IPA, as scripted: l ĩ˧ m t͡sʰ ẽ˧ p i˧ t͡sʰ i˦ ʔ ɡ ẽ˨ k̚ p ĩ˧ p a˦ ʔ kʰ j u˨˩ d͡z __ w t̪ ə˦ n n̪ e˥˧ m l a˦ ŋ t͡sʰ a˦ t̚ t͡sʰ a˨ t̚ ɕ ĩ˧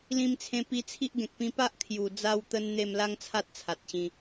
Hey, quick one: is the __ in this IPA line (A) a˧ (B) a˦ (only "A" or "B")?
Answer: A